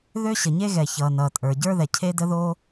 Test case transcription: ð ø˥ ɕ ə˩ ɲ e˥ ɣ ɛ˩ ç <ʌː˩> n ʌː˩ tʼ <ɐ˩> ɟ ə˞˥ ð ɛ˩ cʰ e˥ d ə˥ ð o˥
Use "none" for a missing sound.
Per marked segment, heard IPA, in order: ʌː˩, ə˞˩

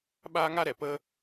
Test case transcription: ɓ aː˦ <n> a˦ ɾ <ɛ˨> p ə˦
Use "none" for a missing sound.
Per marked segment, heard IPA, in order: ŋ, ɛ˨

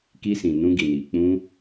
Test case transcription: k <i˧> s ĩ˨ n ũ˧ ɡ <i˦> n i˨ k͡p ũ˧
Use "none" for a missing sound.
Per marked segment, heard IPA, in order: i˧, i˨

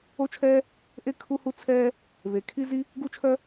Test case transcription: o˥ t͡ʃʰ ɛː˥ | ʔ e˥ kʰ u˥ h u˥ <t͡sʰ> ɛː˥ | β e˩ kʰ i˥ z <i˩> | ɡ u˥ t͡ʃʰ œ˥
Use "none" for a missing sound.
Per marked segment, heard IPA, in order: t͡sʰ, i˥

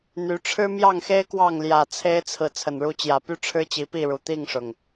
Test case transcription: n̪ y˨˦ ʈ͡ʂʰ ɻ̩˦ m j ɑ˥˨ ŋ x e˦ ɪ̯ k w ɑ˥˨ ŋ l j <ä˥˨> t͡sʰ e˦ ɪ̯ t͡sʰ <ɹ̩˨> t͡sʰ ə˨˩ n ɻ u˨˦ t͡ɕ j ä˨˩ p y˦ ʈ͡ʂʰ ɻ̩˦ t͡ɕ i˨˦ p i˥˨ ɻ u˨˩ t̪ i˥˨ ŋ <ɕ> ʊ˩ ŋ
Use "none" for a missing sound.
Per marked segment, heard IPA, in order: ä˨˩, ɹ̩˨, ʂ

